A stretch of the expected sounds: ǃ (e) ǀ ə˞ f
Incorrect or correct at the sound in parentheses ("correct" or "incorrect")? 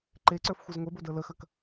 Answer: correct